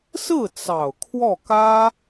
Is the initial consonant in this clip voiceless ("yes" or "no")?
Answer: yes